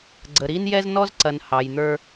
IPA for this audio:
ɡ͡ǀ ə˨ ɾ i˦ n j ɛ˦ z n ɔ˦ z ǀ ɐ˨ n h ɑ˨ j n̪ ə˞˦

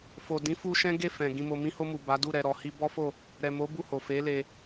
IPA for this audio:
f o˨ d ĩ˨˦ f u˧ ʃ ɛ̃˦ ɡ e˦˨ f ɛ̃˨ ɡ ĩ˨ m o˨ m ĩ˧ h o˧ m u˨ b a˨˦ d u˦˨ ɾ ɛ˨ ɾ ɔ˨ h i˧ b ɔ˦ f o˦˨ | ɾ ɛ˨ m o˨˦ b u˦˨ h o˨ f e˨˦ l e˧

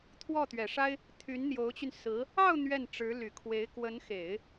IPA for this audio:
t̪ʰ w ɔ˥˩ t̪ ɥ ɛ˨˩ ʂ a˥ ɪ̯ | t̪ʰ y˧˥ n n̪ j o˧˥ ʊ̯ t͡ɕ y˧ n s ɹ̩˧˥ | ɑ˥˧ ʊ̯ n̪ ɥ ɛ˥˩ n ʈ͡ʂ ɻ̩˧˥ l y˨˩ kʰ w e˧˥ ɪ̯ k w ə˧˥ n x e˨˩˦ ɪ̯

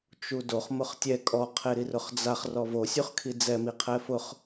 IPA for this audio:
t͡ʃ u d o χ m ʊ χ tʲ ɛ kʼ ɔ qʰ e ɾ i r ʊ χ d͡z a χ r ɔ v o sʲ u χ kʰ i d͡z ɛ m i qʰ ɛ f ʊ χ

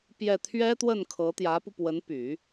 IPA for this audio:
p j ɛ˥˩ t̪ʰ ɥ ɛ˥ t̪ w ə˥˩ n kʰ ɤ˧˥ t̪ j ä˧˥ p u˧ p w ə˧˥ n p y˨˩˦

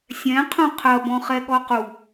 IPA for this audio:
sʲ ɛ̃ qʰ ũ qʰ ɐ b ɔ̃ χ ɛ ɠ ɔ q u

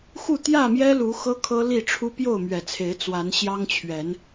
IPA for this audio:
x u˥˨ t̪ j ä˥˨ m j ɛ˦ l u˨˦ x ɤ˦ kʰ ɤ˦ l i˥˨ ʈ͡ʂʰ u˦ p j o˥˨ ʊ̯ m ɥ ɛ˨˩ t͡sʰ e˨˦ ɪ̯ t͡s w a˨˦ n ɕ j ɑ˦ ŋ t͡ɕʰ ɥ ɛ˨˦ n

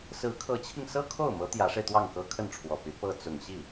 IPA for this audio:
s ɹ̩˧˥ kʰ ɤ˧˥ t͡ɕʰ i˧ ŋ s ɤ˥ kʰ o˥˩ ʊ̯ m ɤ˧˥ t̪ j ä˧˥ ʂ e˧ ɪ̯ t̪ w ɑ˥˩ ŋ k ɤ˥ kʰ ə˥˩ n ʈ͡ʂʰ w ɔ˨˩ p y˧˥ p ɤ˥˩ t͡s ʊ˨˩ ŋ ɕ i˥˩

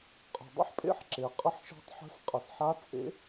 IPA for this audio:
qʼ ə̤˩ dˤ ə̰˥ ħ pʼ ḛ˥ ħ ǁ e˩ qʼ ə˧˥ ħ ʃ e̤˧˥ tˤ ħ ə̤˧˥ s qʼ ə˩ s ħ a˧˥ t͡sʼ ḛ˧˥

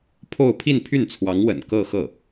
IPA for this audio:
pʰ o˥˧ ʊ̯ pʰ i˥˧ n pʰ y˥˩ n t͡sʰ w ɑ˧˥ ŋ w ə̰˨˩ n k ɤ˥˧ x ɤ˥˩

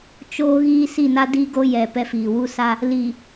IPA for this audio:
t͡ʃ oː˦ ɣ iː˦ s i˦˨ n a˦ d i˦ ɡ o˦ j ɛ˨ p ɛ˦ f iː˨ w u˦ s a˦ | l i˨

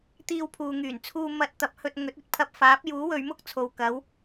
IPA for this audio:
t̪ iː˧ w pʰ uː˨ ŋ yː˨˩ n t͡sʰ uː˧ m ɐ˧ t̚ t̪ ɐ˨˥ p̚ h ɵ˧ t̚ ŋ ɵ˨˥ t̚ ɵ˧ t̚ pʰ ɐ˧ p̚ f aː˨˥ p̚ j uː˨˥ w ɵ˨˧ ɥ m ʊ˥ k̚ t͡sʰ o˨ w k ɐ˨˥ w

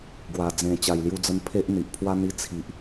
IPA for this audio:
ɡ w a˨˩ d͡z ẽ˨˩ t͡ɕ a˨˩ j l j u˧ d͡z ə˧ n pʰ e˦ ʔ n̪ i˨ ʔ pʰ w a˦ n̪ i˧ t͡sʰ i˨ ʔ

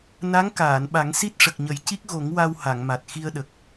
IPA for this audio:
n a˧˥ ŋ k aː˨˩˨ n ɓ a˨˩˦ ŋ s i˦˥ t̚ ʂ ə˨˩ k̚ ɲ ə˨˩˦ j c i˦˥ k̚ ɣ o˨˩˦ ŋ w a˧ w h a˨˩˨ ŋ m a˨˩ t̚ x i˧ ə̯ ɗ ə˨˩ k̚

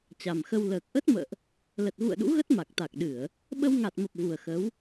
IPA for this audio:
t͡ɕ a˨˩ m x ə˧ w l əː˨˩ k̚ ʔ ə˦˥ t̚ m ə̰ː˧˨ ʔ | l ə˨˩ t̚ ɣ ṵ˧˨ ə̯ ɗ ṵ˧˥ ɣ ə˦˥ t̚ m a˨˩ k̚ t̪ a˨˩ k̚ ɗ ɨ˧˩˨ ə̯ | ɓ ə˧ w ŋ a˨˩ t̚ m ə˨˩ p̚ v u˨˩ ə̯ x ə˨˦ w

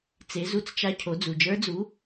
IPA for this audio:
t͡s e˩˧ z u˧˥ t͡s t͡ʃ a˧ cʰ o˩˧ d͡z u˩ d͡ʒ ə˞˧˥ d͡z u˧˥

